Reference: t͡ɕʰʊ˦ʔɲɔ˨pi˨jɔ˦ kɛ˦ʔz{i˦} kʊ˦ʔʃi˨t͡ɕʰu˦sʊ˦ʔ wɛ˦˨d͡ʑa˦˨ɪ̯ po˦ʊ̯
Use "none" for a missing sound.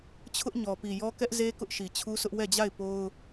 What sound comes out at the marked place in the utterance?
e˦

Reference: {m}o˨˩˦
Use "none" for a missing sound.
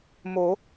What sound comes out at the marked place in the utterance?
m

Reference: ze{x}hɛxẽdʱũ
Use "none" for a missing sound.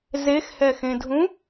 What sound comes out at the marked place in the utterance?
x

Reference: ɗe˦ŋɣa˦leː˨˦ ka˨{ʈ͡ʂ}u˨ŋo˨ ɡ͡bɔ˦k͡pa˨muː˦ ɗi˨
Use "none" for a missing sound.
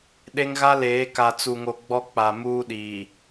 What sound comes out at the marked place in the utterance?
t͡s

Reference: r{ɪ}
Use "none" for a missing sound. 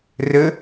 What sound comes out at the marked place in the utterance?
ə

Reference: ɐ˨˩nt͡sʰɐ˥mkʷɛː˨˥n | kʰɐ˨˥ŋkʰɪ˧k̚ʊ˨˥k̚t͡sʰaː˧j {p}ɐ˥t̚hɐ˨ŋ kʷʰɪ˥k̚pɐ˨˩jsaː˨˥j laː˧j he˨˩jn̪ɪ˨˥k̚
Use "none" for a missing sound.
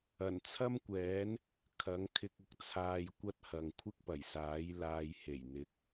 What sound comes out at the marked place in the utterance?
kʷ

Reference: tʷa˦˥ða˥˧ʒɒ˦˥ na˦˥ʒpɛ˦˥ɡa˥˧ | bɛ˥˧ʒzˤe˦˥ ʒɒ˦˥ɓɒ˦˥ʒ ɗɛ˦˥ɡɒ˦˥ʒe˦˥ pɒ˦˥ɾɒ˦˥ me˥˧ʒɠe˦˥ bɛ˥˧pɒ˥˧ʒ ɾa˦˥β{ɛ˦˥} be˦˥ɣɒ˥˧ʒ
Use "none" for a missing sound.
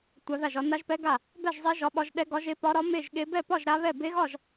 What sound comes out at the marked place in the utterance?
ɛ˥˧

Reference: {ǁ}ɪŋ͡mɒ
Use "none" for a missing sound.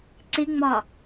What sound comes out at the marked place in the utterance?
ǀ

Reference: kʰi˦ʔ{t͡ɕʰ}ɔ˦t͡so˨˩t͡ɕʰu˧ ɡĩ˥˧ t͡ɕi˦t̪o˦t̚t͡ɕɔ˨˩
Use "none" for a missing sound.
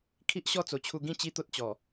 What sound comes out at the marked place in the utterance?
ɕ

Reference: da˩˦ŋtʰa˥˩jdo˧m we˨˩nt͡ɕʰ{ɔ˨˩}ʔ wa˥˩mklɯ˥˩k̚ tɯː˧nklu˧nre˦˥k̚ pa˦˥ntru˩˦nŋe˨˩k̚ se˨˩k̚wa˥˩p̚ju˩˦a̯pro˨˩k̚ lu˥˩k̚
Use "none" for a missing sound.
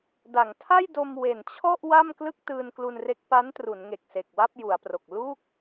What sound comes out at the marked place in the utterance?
ɔ˥˩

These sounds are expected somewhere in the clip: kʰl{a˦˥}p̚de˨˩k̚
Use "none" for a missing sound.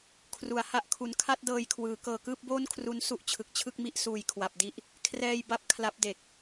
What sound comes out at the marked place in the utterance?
a˦˥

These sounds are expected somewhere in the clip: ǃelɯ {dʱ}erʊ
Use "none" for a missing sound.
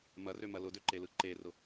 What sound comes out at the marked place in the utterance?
ǃ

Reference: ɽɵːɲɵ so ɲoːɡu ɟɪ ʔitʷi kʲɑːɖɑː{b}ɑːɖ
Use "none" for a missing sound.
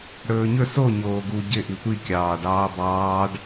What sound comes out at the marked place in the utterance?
b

